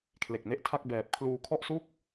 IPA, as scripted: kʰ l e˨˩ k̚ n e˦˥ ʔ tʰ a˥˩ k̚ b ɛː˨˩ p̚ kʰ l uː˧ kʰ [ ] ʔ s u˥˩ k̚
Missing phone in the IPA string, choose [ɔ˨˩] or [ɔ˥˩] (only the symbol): ɔ˥˩